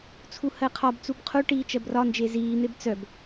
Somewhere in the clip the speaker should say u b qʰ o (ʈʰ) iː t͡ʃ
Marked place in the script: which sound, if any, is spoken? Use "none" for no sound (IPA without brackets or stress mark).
ʈ